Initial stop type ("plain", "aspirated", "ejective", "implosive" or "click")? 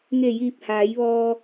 plain